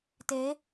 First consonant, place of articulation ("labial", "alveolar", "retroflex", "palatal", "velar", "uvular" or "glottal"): alveolar